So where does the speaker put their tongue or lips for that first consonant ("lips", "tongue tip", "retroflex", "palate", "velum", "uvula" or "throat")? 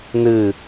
tongue tip